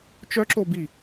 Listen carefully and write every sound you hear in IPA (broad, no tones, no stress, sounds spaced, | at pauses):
t͡ʃ œ ǁ o b i